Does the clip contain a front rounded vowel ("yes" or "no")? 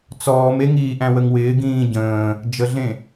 no